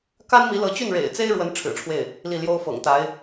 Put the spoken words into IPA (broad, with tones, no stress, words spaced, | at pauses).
ka˥nmi˧˥lɤ˧˥t͡ɕy˥˩n ɻḛ˨˩ɪ̯t͡se˥ɪ̯ɻwə˧˥n ʈ͡ʂʰɻ̩˨˩ʈ͡ʂʰwe˥˩ɪ̯ | li˥˩ljo˥ʊ̯ fɤ̰˨˩ŋt̪a˧˥ɪ̯